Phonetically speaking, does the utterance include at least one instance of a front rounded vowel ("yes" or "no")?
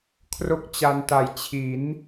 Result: no